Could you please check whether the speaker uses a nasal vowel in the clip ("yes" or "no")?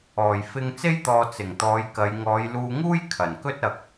no